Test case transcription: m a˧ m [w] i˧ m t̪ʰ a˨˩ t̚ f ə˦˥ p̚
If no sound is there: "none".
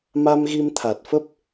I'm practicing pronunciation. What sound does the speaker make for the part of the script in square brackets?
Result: ɣ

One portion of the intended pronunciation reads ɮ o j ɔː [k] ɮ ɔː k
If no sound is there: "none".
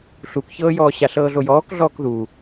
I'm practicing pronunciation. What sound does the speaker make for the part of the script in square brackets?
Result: k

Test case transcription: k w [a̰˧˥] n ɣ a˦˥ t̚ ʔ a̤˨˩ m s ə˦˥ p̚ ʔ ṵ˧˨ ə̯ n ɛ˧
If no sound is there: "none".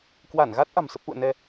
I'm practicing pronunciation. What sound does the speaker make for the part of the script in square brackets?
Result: a˧˩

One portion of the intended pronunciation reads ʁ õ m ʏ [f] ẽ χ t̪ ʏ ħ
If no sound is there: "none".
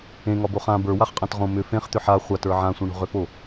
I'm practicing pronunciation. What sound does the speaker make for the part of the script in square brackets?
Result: f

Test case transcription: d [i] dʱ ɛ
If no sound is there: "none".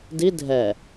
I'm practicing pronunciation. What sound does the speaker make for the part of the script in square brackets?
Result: i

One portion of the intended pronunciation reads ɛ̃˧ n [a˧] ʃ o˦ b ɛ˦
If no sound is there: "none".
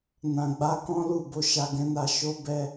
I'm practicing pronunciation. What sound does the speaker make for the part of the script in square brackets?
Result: a˧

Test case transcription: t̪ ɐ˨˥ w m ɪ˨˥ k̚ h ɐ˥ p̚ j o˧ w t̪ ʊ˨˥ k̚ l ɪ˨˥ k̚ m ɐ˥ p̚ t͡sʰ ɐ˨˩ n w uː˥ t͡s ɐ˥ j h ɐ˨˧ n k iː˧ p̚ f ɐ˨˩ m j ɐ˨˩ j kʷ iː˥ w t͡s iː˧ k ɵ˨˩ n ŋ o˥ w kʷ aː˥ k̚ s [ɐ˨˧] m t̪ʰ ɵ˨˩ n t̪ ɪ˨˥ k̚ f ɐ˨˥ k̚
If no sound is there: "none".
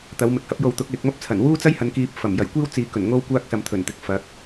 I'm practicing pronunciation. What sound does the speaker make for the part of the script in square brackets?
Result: ɐ˨˧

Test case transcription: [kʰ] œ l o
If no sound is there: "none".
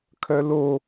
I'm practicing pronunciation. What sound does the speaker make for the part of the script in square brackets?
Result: kʰ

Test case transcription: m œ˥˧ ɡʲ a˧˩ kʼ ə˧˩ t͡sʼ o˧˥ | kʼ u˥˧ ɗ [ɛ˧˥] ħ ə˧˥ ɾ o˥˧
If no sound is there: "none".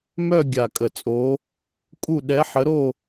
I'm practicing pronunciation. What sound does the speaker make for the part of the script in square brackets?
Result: ɛ˧˥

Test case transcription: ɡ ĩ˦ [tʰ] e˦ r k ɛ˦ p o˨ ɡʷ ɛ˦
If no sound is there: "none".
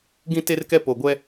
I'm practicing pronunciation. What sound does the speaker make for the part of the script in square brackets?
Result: t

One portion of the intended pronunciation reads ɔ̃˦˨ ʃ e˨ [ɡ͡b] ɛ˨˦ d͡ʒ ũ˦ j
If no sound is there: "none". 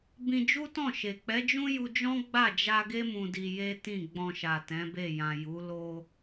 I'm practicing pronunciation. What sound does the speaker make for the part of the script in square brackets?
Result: k͡p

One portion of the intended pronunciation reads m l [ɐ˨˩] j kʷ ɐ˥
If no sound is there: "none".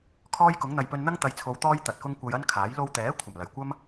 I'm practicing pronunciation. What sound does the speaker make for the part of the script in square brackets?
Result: ɐ˨˩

